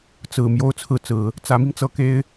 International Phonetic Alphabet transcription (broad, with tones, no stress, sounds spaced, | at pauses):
t͡s ɹ̩˨˩ m j o˥˧ ʊ̯ t͡sʰ ɹ̩˥˩ t͡s ɹ̩˨˩˦ | t͡s ä˧˥ m i˧ ŋ t͡s ɤ˧˥ k e˥ ɪ̯